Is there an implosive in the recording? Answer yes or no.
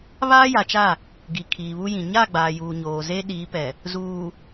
yes